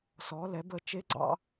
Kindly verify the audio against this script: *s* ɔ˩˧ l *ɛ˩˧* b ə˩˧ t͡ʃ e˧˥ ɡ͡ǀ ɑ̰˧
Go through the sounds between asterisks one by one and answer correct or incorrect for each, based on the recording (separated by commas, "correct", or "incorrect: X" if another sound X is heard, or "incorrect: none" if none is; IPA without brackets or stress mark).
correct, correct